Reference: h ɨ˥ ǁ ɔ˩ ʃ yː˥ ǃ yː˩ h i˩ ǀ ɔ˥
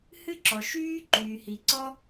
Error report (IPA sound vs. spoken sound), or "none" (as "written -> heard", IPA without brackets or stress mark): none